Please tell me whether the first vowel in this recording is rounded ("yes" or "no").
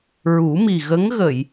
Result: yes